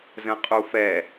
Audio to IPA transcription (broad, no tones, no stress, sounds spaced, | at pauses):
z ə̃ qʼ u f ɛ